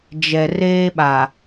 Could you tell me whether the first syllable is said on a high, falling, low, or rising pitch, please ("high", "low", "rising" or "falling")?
low